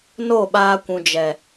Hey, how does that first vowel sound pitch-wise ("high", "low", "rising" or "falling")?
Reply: falling